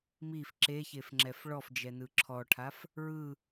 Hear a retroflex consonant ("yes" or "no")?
yes